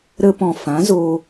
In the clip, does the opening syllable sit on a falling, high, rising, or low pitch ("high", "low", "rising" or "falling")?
high